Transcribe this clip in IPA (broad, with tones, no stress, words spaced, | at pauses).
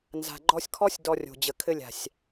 nza̤˨ ɡ͡ǃɔ˧sʲkʰɔ˦sʲ dɔ˧rʲo̤˨d͡ʑə˨ kʰɘ˧lʲa̤˨sʲ